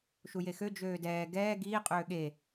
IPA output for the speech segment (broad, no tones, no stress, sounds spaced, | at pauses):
ʃ u j e x ø d͡ʒ øː d ɛː ɡ ɛː ɡ iː qʼ øː ɠ e